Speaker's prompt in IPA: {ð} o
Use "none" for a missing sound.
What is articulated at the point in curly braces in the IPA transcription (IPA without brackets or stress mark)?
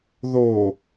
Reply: ð